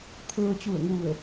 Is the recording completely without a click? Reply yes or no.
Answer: yes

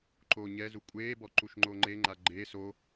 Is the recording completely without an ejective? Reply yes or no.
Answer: no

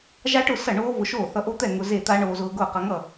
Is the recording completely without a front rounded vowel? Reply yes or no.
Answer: yes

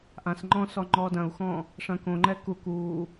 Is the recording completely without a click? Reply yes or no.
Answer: no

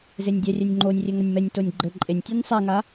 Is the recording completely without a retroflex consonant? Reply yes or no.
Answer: yes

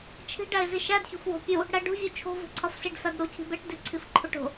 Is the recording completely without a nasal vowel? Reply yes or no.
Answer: yes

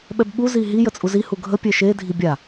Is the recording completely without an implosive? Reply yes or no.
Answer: no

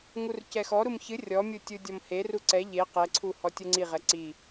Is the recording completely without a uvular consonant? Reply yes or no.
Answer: no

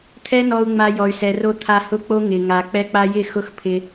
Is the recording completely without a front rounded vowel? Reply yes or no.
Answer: no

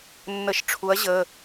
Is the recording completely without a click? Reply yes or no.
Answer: yes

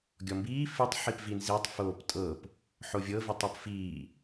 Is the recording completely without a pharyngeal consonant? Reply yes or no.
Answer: no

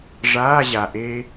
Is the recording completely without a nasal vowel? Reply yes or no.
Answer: yes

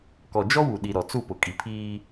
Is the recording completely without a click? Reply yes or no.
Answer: yes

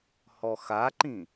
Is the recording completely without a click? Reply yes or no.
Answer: no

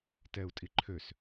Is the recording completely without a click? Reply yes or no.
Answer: no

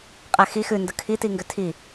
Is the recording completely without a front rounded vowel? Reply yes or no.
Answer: no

